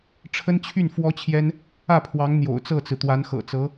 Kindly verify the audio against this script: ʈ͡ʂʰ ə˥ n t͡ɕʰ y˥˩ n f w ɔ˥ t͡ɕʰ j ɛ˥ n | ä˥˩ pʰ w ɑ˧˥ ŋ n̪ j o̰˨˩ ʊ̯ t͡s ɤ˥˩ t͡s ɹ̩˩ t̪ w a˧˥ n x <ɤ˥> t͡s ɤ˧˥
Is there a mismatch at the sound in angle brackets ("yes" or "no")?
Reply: yes